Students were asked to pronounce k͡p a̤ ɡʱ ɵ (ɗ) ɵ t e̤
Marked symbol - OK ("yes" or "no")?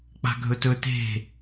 no